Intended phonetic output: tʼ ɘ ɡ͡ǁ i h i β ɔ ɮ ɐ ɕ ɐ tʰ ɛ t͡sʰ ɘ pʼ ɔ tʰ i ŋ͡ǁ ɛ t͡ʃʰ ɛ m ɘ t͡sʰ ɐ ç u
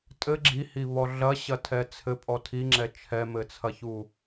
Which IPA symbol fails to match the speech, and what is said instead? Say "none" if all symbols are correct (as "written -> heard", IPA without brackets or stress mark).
none